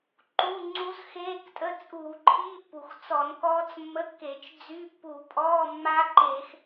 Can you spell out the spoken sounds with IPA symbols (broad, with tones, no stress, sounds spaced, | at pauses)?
ǃ u˧˥˧ ŋ͡ǀ u˦˥ z x eː˧˥˧ k tʼ ə˧˥˧ t͡sʼ uː˧˩˧ ǃʰ iː˧˥˧ pː u˩ x t͡s ɔ˧˩˧ n k ɔː˦˥ t͡s mː ə˧˥˧ kː e˧˩˧ t͡ʃ d͡z y˧˥˧ pː u˧˩˧ pʼ ɔː˧˥˧ mː a˦˥ ǃ e˧˩˧ x